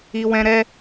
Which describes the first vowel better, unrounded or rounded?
unrounded